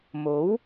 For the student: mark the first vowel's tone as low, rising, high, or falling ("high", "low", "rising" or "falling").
rising